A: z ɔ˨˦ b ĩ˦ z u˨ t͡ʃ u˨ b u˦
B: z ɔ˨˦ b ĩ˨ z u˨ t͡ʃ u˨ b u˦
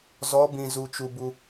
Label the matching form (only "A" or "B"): B